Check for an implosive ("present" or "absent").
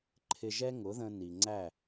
absent